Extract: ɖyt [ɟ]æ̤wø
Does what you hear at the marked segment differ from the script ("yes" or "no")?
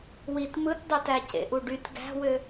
yes